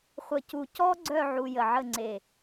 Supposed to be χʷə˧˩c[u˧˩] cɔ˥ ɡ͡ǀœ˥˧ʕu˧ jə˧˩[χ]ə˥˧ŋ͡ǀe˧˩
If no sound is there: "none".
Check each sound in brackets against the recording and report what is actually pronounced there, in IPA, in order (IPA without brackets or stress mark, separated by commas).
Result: u˧˩, ʕ